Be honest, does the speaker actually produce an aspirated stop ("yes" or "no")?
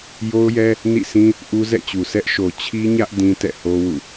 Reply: yes